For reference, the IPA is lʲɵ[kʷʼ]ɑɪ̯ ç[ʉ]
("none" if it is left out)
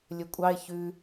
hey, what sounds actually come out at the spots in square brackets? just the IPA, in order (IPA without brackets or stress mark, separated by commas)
kʷʼ, ʉ